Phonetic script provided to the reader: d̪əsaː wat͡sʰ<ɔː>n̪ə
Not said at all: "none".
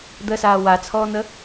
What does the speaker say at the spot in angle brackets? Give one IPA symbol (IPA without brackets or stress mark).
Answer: ɔː